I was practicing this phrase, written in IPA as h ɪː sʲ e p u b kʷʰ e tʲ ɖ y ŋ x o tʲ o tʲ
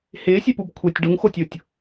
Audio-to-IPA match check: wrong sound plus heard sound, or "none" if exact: y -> u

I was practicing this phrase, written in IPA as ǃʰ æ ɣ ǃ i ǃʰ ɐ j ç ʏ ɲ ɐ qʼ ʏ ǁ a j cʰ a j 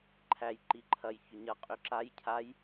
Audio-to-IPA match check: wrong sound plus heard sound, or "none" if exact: ɣ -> j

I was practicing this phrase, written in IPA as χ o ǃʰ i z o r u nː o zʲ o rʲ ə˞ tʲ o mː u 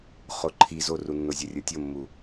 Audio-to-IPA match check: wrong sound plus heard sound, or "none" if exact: none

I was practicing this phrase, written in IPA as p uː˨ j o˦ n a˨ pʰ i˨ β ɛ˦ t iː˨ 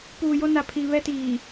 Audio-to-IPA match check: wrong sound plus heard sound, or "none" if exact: none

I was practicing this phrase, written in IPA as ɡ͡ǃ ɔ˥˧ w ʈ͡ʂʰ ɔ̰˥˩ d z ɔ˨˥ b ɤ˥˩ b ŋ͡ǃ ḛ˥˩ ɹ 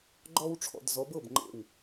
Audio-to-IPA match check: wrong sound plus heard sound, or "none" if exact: ɹ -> w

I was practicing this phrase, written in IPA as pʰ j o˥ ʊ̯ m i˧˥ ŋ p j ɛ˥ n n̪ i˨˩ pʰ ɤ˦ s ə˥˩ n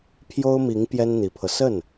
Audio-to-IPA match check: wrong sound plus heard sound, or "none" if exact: none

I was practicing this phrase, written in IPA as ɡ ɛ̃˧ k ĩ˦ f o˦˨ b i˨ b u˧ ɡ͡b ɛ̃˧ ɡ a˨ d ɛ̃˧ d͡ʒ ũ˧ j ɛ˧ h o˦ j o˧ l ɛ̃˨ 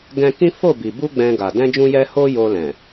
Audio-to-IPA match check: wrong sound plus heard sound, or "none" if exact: none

